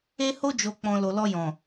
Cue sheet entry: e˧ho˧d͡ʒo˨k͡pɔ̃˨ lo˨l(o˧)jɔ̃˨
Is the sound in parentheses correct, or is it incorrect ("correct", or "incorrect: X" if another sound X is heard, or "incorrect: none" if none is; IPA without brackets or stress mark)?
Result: incorrect: ɔ˧